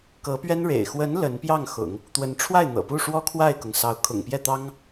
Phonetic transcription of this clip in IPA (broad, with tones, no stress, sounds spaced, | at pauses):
k ɤ˧˥ p ɥ ɛ˥ n ɻ ḛ˨˩ ɪ̯ x w ə˧˥ n l ə˧˥ n p j ɑ˥˩ ŋ x ʊ̰˨˩˦ ŋ | t̪ w ə˧˥ n ʈ͡ʂʰ w a˥˩ ɪ̯ n̪ ɤ̰˨˩ p u˥˩ ʂ w ɔ˥ kʰ w a˥˩ ɪ̯ k ʊ˩ ŋ s ɑ˧˥ ʊ̯ kʰ ʊ̰˨˩ ŋ p j ɛ˥˩ t̪ ɑ˥ ŋ